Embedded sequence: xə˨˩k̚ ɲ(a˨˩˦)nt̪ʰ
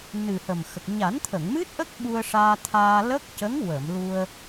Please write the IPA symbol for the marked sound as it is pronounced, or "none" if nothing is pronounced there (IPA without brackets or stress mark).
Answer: a˨˩˦